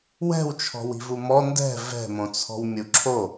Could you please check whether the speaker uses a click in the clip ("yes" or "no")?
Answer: yes